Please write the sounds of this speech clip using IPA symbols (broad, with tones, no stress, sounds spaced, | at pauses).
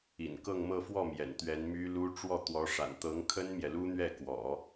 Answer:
ḭ˨˩ n k ɤ˥˧ ŋ m ɤ˥˧ f w ɔ˥˩ m j ɛ̰˨˩ n t̪ ɥ ɛ˧˥ n m y˥ l u˥ ʈ͡ʂ w ɔ˥˩ t̪ w ɔ˧˥ ʂ a̰˨˩ n t̪ ɤ˧˥ ŋ kʰ ə˥ n m j ɛ˨ l u˥ n̪ ɥ ɛ˥˩ k w ɔ̰˨˩˦